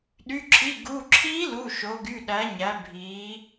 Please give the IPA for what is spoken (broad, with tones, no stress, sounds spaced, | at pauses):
ɗ y˩˧˩ ǁʰ i˩˧˩ ɡ u˩˧˩ ǁʰ i˧˥ l u˩˧˩ ʃ o˩˧ ɡ y˩˧˩ ɗ æ˩˧ ɲ æ˩˧ bʱ i˩˧